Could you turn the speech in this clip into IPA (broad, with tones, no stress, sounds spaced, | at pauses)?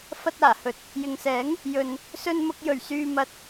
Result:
f ɐ˧ t̚ aː˨˩ h ɵ˨ t̚ | j ɪ˨ ŋ s ɛː˨˥ ŋ | j ɵ˨ n | s ɵ˧ n m ʊ˧ k̚ j ɵ˨˩ ɥ s yː˧ m ɐ˧ t̚